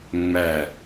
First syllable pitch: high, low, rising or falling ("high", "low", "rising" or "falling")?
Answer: falling